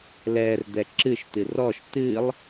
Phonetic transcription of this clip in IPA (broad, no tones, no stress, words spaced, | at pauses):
lɛrd̪ɛ ǁɨʃtɨ rɔʃ tɨlˠ